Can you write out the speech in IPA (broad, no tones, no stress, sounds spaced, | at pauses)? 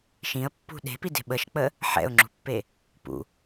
ʃ ĩ ə̯ pː ṳ ɗ e̤ p i d e̤ ɓ ə ʃ k͡p ə | ħ ɛ̰ ʊ̯ ŋ͡ǁ ṳ pː e | p ṵ